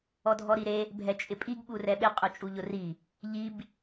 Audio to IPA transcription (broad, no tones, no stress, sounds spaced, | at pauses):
ɔ dʱ ɔ ɾ i ɾ e | bʱ ɛ t͡ʃʼ ɪ pʼ i ɡ ɓ u r ɛ ɓ ɪ qʼ ʊ t͡ʃʼ u ʎ ʊ r i | ʎ i b